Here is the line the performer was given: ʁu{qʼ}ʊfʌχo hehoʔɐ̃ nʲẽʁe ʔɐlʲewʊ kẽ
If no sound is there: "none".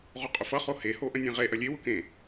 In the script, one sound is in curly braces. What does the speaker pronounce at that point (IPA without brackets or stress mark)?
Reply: qʼ